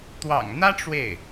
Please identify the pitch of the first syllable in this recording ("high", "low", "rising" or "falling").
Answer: low